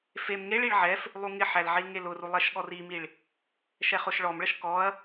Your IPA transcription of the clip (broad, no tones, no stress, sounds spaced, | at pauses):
f e m ŋ e ɭ i ɭ ʕ ɛ f | lˠ u ŋ ɪ ħ æ l ʕ i l ŋ e l ʊ r u lˠ ɛ ʃ ɠ ɔ r i m i ɭ | ʃ ɛ χ ʊ ʃ ɭ ɔ m ɭ ə ʃ k ɔ ɐ̯